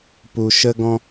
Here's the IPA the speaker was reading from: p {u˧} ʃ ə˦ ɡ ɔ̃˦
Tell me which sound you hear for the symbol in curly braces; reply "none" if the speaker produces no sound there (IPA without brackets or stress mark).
u˧